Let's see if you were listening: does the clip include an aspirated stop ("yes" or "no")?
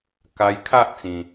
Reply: yes